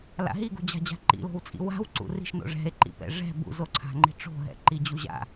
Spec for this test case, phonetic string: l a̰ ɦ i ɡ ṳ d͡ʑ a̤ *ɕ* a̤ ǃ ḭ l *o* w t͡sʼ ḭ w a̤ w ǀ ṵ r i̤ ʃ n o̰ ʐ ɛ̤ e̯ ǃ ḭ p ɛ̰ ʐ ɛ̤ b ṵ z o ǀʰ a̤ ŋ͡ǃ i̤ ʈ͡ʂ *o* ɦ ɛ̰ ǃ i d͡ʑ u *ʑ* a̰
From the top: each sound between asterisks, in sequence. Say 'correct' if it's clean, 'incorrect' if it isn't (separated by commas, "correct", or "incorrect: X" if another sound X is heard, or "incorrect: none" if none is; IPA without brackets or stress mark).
incorrect: d͡ʑ, incorrect: o̤, incorrect: o̤, correct